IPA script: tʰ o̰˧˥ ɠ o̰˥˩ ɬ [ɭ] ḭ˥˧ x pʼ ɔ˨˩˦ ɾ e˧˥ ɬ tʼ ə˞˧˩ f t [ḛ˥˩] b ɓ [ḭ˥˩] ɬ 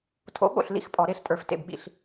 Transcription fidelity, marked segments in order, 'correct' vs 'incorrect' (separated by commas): incorrect, correct, correct